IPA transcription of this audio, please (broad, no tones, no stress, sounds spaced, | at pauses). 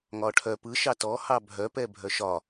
ŋ ɒ ʈʰ œ p ɯ ʃ ɑ t ɔ h ɑ bʱ œ p ɛ bʱ œ ʃ ɒ